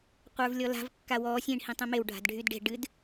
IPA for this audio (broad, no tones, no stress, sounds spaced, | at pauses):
qʷ ə˞ v lʲ ɔ l a̤ v kː a w ɔː sʲ ĩ ɳ h ĩ tˤ ẽ m e w ɖʱ a̤ d ɖʱ y d ɖ e̤ ɖ ɨ d